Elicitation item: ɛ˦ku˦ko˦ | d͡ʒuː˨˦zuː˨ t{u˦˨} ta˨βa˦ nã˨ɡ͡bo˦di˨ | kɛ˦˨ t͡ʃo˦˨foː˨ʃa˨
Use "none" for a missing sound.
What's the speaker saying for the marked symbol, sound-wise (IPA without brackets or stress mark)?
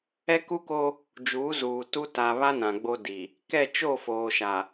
u˦